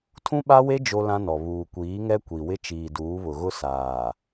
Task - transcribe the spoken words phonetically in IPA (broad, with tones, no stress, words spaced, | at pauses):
tʰũ˦ɓa˦we˦ d͡ʒo˦lã˦nɔ˨ βuː˨ kʷiː˨˦ŋɛ˦kʷi˨wɪ˦ t͡ʃiː˨duː˨˦βʊ˨ ɣʊ˦ saː˨